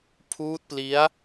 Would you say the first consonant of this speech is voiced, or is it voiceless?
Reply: voiceless